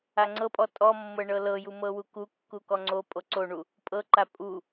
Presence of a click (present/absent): present